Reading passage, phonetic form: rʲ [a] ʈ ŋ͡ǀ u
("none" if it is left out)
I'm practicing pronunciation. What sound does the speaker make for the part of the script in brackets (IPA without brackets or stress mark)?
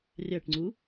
a